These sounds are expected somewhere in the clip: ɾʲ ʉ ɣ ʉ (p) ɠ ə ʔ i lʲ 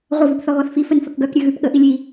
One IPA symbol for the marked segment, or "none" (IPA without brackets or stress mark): p